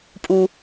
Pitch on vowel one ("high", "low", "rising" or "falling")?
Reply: low